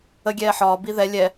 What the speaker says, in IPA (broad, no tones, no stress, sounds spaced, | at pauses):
ə ɡʲ ɛː ħ ɒː b i ð ɛ lʲ ɛ